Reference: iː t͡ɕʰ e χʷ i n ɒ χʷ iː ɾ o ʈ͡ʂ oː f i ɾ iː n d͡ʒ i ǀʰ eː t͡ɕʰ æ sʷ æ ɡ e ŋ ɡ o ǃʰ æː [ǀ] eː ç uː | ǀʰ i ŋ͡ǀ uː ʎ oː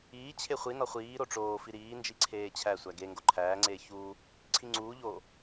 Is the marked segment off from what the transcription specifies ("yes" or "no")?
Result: yes